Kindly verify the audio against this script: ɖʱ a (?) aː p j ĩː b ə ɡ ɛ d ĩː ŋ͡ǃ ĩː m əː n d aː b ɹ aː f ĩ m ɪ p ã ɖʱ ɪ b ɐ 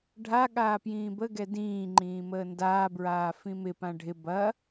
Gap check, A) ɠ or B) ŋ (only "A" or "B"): A